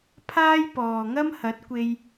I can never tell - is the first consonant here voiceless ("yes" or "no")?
yes